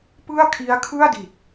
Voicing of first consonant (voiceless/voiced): voiceless